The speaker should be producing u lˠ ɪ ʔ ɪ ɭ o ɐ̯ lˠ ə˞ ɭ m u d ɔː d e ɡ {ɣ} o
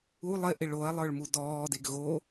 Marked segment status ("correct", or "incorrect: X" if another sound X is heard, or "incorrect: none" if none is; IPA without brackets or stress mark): correct